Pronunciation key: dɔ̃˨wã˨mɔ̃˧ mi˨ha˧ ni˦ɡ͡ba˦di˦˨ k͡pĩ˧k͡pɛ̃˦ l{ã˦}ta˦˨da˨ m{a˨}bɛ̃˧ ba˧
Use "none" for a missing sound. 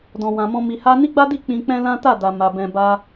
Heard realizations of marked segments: ã˦, a˨

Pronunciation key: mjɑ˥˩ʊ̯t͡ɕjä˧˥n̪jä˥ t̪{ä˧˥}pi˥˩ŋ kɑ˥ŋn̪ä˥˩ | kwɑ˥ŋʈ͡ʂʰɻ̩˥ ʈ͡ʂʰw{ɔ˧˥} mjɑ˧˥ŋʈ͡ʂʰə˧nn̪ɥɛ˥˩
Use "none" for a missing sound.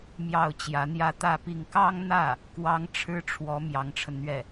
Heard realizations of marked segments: ä˥˧, ɔ˧˥

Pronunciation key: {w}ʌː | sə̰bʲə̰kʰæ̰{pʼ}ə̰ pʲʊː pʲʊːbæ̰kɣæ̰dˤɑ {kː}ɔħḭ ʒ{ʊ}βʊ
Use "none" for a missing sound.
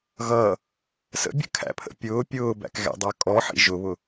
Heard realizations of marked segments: ɣ, pʰ, kʼ, ʊ

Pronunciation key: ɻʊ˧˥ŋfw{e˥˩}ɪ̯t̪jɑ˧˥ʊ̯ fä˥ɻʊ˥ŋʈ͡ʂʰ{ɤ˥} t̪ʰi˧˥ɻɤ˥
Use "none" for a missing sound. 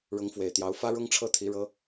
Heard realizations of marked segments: e˨˩, ɤ˥˩

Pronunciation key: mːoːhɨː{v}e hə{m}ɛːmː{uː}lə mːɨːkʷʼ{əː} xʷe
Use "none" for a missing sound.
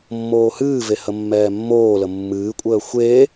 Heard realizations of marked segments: v, mː, oː, əː

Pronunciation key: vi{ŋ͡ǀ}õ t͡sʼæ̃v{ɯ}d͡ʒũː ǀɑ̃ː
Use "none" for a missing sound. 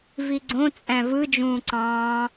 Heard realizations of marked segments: ɡ͡ǀ, ɯ

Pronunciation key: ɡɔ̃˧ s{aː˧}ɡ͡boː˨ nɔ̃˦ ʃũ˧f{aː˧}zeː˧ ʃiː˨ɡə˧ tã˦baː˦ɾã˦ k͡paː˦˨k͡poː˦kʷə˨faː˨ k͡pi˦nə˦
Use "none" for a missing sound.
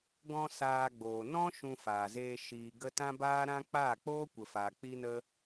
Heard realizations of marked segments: aː˧, aː˨

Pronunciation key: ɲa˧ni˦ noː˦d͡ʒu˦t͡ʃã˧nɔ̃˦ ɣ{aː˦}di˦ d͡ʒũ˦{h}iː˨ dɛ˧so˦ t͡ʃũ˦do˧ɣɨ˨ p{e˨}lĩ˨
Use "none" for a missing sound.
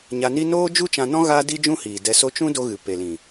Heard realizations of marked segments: aː˦, h, e˨

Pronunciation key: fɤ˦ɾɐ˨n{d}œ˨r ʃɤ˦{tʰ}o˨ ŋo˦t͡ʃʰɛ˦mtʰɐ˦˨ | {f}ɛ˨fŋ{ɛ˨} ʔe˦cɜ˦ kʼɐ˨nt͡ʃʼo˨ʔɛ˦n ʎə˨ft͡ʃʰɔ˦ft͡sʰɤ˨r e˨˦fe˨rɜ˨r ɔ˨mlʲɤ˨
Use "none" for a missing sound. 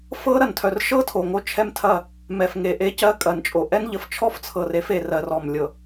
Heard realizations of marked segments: tʰ, tʰ, m, e˨

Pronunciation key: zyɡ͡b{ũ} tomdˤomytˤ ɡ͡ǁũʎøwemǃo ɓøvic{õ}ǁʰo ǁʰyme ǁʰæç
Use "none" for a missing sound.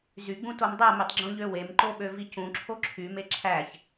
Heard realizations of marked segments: ũ, ũ

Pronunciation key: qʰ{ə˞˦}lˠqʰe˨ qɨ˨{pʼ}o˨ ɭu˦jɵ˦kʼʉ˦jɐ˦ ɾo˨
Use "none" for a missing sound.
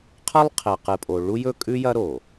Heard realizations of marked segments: ɐ˦, pʼ

